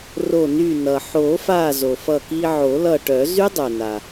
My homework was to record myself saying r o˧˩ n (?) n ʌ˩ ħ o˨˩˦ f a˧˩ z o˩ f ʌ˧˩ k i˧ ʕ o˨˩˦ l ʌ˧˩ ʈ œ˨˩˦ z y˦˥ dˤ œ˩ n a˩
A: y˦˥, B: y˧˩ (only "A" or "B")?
B